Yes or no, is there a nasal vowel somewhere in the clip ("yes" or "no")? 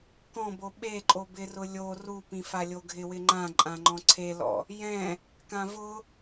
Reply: yes